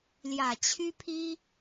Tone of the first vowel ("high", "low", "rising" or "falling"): low